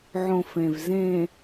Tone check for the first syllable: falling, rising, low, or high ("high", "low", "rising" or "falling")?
low